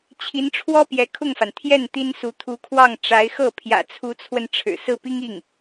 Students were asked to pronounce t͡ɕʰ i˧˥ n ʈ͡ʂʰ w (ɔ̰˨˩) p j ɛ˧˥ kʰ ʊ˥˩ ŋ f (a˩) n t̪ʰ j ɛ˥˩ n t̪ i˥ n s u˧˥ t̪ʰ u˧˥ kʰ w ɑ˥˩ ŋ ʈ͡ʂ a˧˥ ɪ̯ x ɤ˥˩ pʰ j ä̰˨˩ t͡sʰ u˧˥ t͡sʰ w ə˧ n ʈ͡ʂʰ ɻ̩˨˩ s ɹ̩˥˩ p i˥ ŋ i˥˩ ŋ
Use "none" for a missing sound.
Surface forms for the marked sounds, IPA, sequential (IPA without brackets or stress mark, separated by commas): ɔ˥, a˩